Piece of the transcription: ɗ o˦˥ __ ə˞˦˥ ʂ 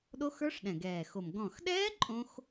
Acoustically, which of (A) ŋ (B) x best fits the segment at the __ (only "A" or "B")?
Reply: B